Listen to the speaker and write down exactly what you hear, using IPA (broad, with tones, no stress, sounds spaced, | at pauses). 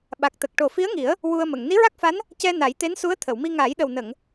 ɓ a˨˩ k̚ t̪ ə˨˩ k̚ ʈ o˨˩ f i˧˥ ə̯ ŋ i˨˩˦ ə̯ | w u˧ ə̯ m ə˨˩˨ ŋ n i˧˥ ɹ a˦˥ k̚ f a˧˥ n | c ɛ˧ n a˨˩˦ j t̪ e˧˥ n s u˧˥ ə̯ t̪ʰ ə˨˩˨ w m i˧ ŋ aː˨˩˦ j ɗ ə˨˩ w n ə˨˩˨ ŋ